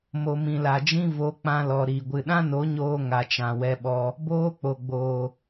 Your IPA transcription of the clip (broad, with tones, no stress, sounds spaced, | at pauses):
m o˨ m ĩ˨ l a˨ d͡ʒ ĩ˦ v o˨˦ k͡p ã˧ l ɔ˨ ɾ i˨ ɡʷ ɨ˨ ɗ ã˦ n o˨˦ ɲ oː˧ ŋ a˨ t͡ʃ ã˨ w ɛ˧ ɓ ɔ˧ | b oː˦ k͡p o˨ ɡ͡b oː˨